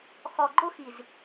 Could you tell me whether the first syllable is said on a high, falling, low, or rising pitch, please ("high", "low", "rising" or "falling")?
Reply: low